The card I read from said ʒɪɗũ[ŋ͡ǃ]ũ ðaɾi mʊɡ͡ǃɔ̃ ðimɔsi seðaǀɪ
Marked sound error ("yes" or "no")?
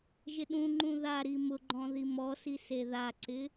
no